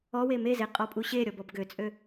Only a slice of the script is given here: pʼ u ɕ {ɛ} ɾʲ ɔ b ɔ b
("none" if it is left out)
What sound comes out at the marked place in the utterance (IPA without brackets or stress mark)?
e